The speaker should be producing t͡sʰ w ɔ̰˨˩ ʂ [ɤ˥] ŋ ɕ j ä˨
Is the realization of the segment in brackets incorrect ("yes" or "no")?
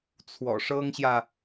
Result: no